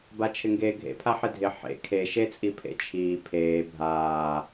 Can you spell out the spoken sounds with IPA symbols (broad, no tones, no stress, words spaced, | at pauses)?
bat͡ʃʰɪŋɡeːɡʱḛ pʰaħɪdʱɪ ħḛ kʰe ʃet͡sʼipʰḛt͡ʃʰiː pʰeː bʱaː